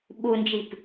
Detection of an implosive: present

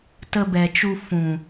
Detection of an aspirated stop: absent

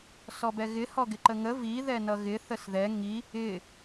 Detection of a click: present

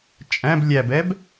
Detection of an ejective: present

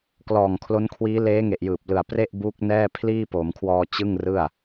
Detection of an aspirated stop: present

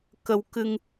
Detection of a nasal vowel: absent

